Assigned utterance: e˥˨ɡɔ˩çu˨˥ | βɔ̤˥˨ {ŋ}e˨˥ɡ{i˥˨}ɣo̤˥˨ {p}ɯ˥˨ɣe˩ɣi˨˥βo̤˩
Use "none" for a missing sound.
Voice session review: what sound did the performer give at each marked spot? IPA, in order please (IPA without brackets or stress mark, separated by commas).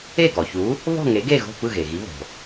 ŋ, e˥˨, p